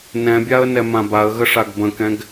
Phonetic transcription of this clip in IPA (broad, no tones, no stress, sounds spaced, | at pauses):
n ɛ̃ bʲ a ə̯ n ɛ m ã b a ə̯ ɣ ə ʂ a ɡ b ə̃ k ɛ̃ ɡ